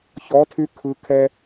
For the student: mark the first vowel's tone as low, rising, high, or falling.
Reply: rising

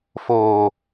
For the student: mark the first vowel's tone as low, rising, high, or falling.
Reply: low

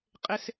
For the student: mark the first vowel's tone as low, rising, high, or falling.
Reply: high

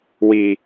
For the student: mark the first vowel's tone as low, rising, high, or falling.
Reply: low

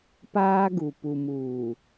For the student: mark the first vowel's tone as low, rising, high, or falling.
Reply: high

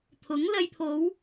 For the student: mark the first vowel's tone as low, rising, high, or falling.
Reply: rising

